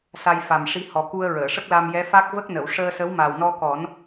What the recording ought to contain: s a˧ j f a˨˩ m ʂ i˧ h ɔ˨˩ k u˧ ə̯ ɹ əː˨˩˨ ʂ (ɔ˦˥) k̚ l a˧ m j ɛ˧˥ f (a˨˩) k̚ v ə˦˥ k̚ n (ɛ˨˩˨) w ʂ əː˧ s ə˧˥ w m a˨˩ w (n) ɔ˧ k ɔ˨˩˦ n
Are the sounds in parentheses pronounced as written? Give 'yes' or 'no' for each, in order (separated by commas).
no, no, no, yes